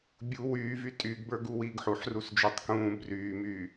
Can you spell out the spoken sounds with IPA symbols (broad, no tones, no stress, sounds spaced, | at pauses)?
bʲ u w yː v y tʼ y ɡ b ə˞ ɡ u w iː ɡ ħ u ħ r u s d͡ʒ ə˞ tˤ k ũː b r yː m yː